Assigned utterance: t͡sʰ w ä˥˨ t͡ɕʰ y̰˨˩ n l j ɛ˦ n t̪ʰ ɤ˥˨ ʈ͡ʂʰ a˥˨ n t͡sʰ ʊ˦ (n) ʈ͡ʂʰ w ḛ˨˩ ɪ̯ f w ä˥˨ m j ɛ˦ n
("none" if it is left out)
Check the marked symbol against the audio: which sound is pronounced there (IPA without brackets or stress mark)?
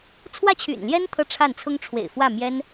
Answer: ŋ